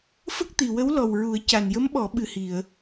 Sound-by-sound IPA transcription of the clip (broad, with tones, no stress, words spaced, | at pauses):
fə˦˥k̚t̪i˨˩wə˧˥w lɔ˨˩wɹu˨˩˦ə̯ ca˨˩njə˧˥mɓɔ˨˩˦ ɓɨ˨˩hi˨˩˨ə̯